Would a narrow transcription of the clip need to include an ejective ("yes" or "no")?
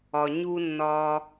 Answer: no